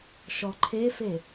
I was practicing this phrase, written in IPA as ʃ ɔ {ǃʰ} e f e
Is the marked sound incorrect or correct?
correct